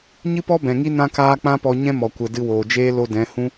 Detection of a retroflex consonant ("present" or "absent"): absent